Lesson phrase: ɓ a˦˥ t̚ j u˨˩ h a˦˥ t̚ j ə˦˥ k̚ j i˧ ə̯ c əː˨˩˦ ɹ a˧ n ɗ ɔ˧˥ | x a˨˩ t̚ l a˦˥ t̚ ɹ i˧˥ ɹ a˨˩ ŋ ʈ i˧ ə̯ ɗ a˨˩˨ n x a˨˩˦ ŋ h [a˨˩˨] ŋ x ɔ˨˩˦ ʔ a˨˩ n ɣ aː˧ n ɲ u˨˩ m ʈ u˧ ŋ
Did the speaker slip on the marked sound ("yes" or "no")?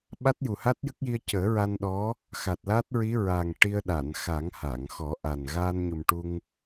no